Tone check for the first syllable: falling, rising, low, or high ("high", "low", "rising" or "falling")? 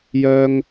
high